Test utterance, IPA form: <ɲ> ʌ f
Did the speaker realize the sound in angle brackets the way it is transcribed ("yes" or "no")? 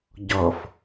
no